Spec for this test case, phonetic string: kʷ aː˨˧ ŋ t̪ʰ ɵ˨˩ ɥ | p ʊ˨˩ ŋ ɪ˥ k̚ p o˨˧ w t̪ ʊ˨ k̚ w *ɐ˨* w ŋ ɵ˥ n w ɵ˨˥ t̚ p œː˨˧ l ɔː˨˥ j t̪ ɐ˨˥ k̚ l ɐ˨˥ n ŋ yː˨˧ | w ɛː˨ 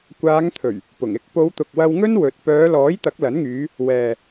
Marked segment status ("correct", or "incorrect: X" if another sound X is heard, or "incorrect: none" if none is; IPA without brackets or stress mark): incorrect: ɐ˧